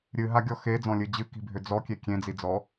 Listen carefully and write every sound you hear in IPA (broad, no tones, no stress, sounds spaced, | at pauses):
ɾʲ ɨ ɦ a ɡʲ ɔ x e d͡z ɔ̃ lʲ ɨ d͡ʑ ɨ k i̤ bʱ ʏ d͡z ɔ kʲ e kʲ ẽ d͡z i d͡z ɔ